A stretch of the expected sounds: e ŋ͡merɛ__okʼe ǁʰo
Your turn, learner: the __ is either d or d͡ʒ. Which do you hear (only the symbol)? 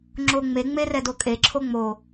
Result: d